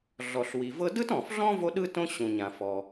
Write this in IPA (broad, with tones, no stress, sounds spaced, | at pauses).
ɮ ɔ˩ ɬ w i˩ v ɤ˥ d ɯ˥ t ɔ̃˩ f ɮ ɔ̃˥ v o˥ ɗ ɯ˥ t õ˥ ɕ ũ˩ ɲ ã˩ f ɔ˩